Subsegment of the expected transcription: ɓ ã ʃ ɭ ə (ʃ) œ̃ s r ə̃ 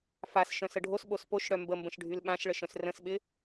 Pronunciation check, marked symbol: correct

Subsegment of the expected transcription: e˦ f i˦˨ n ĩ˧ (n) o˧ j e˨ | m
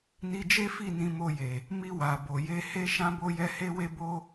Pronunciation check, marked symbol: incorrect: m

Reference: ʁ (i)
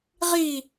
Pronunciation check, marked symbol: incorrect: iː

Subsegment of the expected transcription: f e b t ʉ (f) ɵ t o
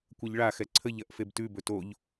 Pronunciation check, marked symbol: incorrect: b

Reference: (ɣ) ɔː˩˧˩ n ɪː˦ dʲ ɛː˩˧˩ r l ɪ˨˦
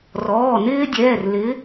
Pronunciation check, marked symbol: incorrect: r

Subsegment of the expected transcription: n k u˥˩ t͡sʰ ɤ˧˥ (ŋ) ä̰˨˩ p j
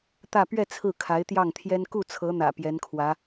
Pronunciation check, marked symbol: incorrect: n̪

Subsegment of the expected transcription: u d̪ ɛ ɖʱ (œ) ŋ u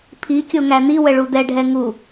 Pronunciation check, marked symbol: incorrect: ɛ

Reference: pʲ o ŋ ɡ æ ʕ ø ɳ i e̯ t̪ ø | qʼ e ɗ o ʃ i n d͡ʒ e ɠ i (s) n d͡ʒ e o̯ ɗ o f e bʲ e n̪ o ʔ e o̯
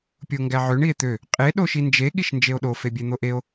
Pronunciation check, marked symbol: incorrect: ʃ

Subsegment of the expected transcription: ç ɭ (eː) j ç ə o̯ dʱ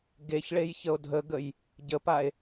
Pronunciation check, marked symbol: incorrect: e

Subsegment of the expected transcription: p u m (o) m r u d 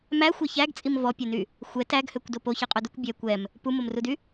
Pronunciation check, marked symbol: correct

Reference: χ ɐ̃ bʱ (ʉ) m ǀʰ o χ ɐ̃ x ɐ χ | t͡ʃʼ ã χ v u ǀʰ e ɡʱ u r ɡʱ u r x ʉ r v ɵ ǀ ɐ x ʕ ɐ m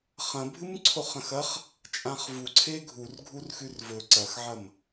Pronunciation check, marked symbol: incorrect: ɨ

